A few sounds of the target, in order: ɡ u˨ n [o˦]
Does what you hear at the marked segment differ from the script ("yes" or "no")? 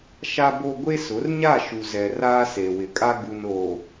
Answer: yes